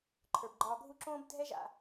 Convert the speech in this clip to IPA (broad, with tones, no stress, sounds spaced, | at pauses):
ǃʰ ə˞˩ b ɡ͡ǃ ɒː˨ ɡʱ u˦ ǁ õː˥ b dʱ ɛ˥ ʒ a̰˨